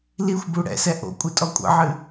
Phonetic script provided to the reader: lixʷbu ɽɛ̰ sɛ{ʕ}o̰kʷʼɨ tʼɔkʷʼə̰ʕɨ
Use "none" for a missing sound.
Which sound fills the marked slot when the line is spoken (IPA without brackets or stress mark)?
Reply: ʔ